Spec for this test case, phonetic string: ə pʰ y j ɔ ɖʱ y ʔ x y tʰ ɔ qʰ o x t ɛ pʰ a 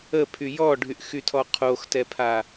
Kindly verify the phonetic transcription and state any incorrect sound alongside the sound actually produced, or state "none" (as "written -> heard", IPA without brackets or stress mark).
none